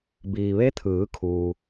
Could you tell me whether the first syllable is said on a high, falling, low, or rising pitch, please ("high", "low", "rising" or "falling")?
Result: low